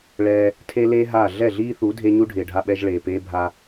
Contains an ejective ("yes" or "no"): no